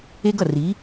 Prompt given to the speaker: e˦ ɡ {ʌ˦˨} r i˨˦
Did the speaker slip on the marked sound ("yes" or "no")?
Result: no